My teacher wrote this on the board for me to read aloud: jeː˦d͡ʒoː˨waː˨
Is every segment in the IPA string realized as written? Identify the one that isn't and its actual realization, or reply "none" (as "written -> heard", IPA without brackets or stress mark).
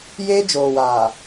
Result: none